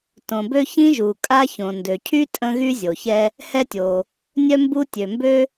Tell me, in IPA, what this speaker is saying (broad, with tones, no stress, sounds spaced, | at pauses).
t õ˩ b ø˥ ç ĩ˥ ʒ u˩ kʼ a˥ ç õ˩ n d ø˩ cʰ y˥ tʼ ə̃˥ ɣ y˥ zʲ o˩ ç ɛ˥ | h ɛ˥ tʲ o˩ | nʲ œ˥ m b u˥ tʲ ø˩ m b ø˥